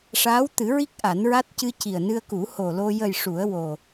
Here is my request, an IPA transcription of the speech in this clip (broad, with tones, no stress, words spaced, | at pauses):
ʂaː˧˥wt̪ɨ˨˩˦ɹi˦˥k̚ ʔa˨˩˦nɹa˦˥t̚ cɨ˧ci˨˩ə̯nɨ˧ə̯ku˨˩˦ ho˨˩lo˧ jə˨˩j ʂu˨˩˦ə̯wo˨˩